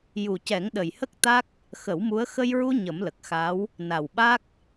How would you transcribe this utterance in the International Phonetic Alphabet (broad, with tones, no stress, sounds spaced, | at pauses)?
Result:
j u˨˩ c ɛ˨˩˦ ŋ ɗ ə˨˩ j h ə˦˥ k̚ t̪ a˦˥ k̚ | x ə˨˩˦ w m u˧˥ ə̯ x ə˧ j ɹ u˧ ɲ ə˨˩˦ m l ə˨˩ k̚ x a˧˥ w | n a˨˩ w ɓ a˦˥ k̚